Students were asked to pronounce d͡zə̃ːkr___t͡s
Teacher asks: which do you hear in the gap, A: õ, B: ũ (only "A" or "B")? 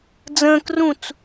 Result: B